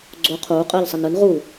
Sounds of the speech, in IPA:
ɡ͡ǀo qʰuː qʼɯːʎsˤenɯn ʁu

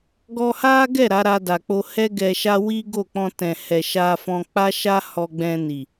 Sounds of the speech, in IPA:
ɡɔ˧ha˦ɡɛ˦˨ ɾa˨˦ɾa˧da˨k͡po˧ hɛ˦ ɡɛ˧ʃa˦ wi˦ ɡo˦˨k͡pɔ̃˧tɛ̃˨ hɛ˨ʃa˧fɔ̃˧ k͡pa˦ʃa˦ hɔ˧ ɡ͡bɛ̃˧ ni˨

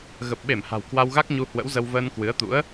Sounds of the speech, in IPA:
ɣə˨˩p̚ɓe˧˩mha̤˨˩w kwa˧wɣa˦˥k̚ ɲu˧hwə̰˧˥wzə˧w vəː˧nkwɨ˨˦ə̯ t̪ṵ˧˥ə̯

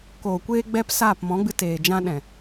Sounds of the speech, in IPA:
koː˨kʷeː˧ɡ͡bɛ˧p saː˦˨p mɔ̃˨˦ɡ͡bɨ˧ teː˨ d͡ʒã˧ɗɛ̃˨

